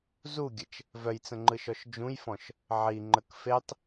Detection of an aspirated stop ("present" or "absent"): absent